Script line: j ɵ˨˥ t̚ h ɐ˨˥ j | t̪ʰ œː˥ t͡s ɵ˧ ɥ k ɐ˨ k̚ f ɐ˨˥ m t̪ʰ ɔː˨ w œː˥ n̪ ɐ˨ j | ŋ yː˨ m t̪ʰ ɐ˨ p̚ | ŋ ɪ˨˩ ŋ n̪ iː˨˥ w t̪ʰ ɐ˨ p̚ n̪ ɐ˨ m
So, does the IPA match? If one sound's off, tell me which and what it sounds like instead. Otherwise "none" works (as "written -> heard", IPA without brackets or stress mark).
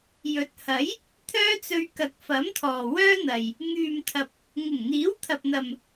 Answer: none